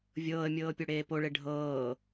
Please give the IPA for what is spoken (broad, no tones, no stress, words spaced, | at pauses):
vʲɤːə̯mʲɤːpʲoɽeː poɭe ɖʱɤː